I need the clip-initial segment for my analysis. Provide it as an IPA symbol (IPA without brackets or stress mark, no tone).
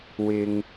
w